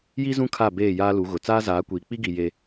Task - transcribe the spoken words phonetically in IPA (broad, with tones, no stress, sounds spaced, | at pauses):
j i˦ z ũ˦ kʰ a˦˨ b eː˦˨ j aː˦ l u˨˦ ɣ ʊ˨ t͡s aː˦ z aː˨˦ kʷ iː˨ k͡p i˦ ɡ i˨ j e˦